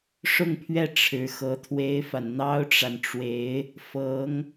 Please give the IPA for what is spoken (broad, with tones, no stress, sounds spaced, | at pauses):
ʂ ʊ˥˧ ŋ pʰ ɥ ɛ˥˩ ʈ͡ʂʰ ɻ̩˧˥ x ɤ˧˥ t̪ʰ w e˥ ɪ̯ f a˨ n n̪ ɑ˥ ʊ̯ ʈ͡ʂ a˨ n ʈ͡ʂ w e˧˥ ɪ̯ | f ɤ˧˥ ŋ